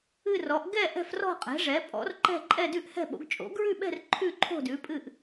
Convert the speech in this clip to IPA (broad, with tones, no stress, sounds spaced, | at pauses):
ɨ˥˧ r ɔ˩˥ ʔ ɡ ɛ˥˧ ʔ ɛ̤˥˧ f r ɔ̤˥˧ qʼ ɛ̤˩˥ ʐ ɛ˩˥ pʼ ɔ̰˩˥ r ǃ ɛ̤˥˧ ǃʼ ɛ˥˧ d ʉ˥˧ ʔ h ɛ̤˥˧ ɓ o̰˩˥ ɡ t͡ʃʼ o̰˩˥ ɡ ɹ ʉ˥˧ ɓ ɛ̤˥˧ r ǃʰ ʉ˥˧ ǃʰ o̤˥˧ d ʉ˩˥ pʼ ɨ˥˧ ʔ